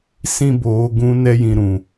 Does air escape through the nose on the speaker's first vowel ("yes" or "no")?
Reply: yes